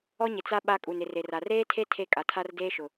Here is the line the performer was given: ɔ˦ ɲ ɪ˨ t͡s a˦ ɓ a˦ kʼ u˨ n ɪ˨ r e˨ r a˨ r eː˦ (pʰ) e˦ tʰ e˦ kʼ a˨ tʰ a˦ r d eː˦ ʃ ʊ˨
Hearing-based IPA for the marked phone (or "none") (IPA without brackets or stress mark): tʰ